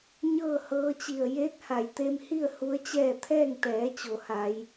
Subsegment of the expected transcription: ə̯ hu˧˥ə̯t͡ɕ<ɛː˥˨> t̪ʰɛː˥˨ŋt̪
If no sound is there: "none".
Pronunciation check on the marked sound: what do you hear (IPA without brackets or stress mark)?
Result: ɛː˥˨